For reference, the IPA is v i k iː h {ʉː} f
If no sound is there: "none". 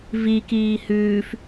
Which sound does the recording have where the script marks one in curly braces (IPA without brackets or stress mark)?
ʉː